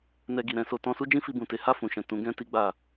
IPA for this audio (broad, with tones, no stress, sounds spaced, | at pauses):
n ɛ˧ ɡ i˨ ɾ ɛ̃˧ s o˧ t ɔ̃˧ s u˦ d͡ʒ ĩ˦ f i˧ b ũ˨ t e˨˦ h a˦˨ f ũ˨ ʃ ɛ̃˨ t ũ˨˦ ɡ ɛ̃˦ t i˦ ɡ͡b a˦˨